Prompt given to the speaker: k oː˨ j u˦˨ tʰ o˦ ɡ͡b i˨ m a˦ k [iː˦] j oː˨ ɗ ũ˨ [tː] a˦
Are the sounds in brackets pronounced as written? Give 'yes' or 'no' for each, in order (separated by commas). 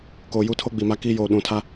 yes, no